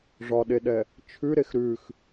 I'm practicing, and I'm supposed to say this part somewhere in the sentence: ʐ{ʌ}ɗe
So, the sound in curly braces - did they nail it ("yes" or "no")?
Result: no